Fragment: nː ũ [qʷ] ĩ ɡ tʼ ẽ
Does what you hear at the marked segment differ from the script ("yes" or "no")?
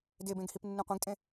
no